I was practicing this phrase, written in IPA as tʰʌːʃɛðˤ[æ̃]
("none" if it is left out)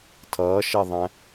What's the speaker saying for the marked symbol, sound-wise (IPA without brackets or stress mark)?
æ̃